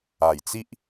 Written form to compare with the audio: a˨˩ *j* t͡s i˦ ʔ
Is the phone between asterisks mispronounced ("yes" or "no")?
no